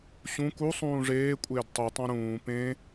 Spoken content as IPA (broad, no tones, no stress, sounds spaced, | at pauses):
ɕ ũ k u sˤ ũː ʐ eː kʷʼ ɪː d tˤ u tˤ ã ɾ ũː p ẽ